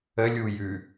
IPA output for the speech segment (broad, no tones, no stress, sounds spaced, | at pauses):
ə lʲ u j ʉ